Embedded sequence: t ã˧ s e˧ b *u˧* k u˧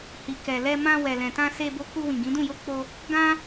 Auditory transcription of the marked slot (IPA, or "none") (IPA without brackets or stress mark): o˧